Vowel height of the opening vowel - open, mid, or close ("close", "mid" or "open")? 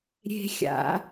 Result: mid